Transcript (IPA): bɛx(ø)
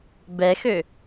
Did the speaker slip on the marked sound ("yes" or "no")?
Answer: no